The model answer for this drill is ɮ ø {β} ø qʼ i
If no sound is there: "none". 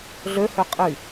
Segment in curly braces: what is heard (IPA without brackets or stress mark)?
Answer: h